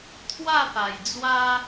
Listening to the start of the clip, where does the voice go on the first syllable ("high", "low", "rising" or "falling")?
falling